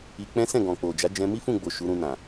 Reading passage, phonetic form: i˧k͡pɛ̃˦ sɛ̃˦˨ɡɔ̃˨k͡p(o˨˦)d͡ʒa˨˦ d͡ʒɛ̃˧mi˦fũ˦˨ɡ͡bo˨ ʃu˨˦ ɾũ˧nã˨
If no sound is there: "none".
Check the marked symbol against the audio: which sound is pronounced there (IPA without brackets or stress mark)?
o˨